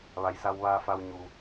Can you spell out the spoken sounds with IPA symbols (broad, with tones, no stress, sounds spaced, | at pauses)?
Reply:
ʋ a˩˧ j s a˧ w ʋ aː˧ f a˧ w ɲ u˩